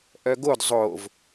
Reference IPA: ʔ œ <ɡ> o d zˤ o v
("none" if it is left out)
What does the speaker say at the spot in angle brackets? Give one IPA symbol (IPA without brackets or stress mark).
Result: ɡ